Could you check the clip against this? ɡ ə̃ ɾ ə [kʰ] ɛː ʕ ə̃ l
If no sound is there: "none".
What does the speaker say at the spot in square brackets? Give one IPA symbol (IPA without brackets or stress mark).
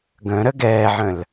ɡ